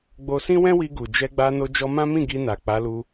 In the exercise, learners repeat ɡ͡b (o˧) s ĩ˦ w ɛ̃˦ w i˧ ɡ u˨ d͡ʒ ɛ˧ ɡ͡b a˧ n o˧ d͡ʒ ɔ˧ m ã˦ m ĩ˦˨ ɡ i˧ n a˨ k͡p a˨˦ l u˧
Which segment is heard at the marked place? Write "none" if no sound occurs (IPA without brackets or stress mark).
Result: o˧